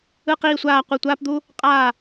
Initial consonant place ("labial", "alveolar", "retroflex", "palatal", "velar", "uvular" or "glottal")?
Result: uvular